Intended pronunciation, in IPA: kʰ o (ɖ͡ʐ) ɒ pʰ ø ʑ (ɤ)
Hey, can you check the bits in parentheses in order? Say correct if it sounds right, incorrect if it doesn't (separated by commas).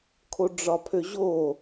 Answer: correct, incorrect